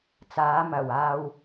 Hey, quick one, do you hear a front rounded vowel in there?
no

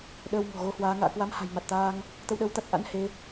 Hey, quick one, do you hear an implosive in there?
yes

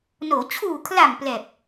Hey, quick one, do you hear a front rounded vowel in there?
no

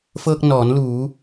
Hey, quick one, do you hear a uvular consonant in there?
no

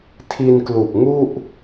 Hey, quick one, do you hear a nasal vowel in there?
no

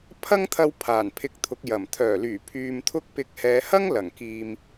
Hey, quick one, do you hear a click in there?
no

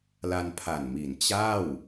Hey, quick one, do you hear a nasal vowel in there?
no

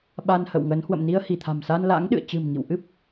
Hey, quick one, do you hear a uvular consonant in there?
no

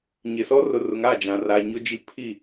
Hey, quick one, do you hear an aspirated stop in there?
yes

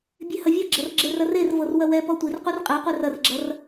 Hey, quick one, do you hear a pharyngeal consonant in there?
no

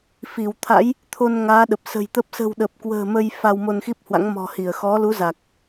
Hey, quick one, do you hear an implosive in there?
yes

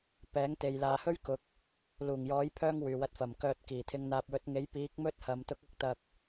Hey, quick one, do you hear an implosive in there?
no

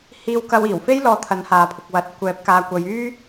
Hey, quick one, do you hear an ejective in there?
no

